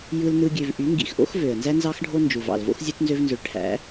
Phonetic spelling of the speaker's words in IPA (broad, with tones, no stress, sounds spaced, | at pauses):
j ɯ˧ l n ɯ˧ ɡʲ ø˨ v ʔ y˨˦ ŋ ɡ ḭ˨ x ʔ o̰˦ x v ø˨ ə̯ n z æ˦ n z ɑ˦ x ɖʱ o˦ n d͡ʒ u˨ v ɑ̰˨ l v o̰˦ x zʲ ɯ˦ t n z ø˦ v n z ø˧ ɭ ʈʰ æ̰˨˦